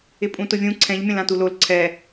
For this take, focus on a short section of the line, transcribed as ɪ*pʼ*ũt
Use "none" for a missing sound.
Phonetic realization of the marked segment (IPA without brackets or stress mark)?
pʼ